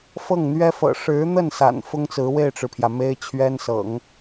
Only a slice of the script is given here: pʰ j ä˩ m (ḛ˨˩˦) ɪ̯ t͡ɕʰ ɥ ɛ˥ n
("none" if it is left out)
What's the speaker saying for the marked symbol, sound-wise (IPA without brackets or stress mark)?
e˥